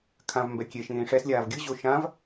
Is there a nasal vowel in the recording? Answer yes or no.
yes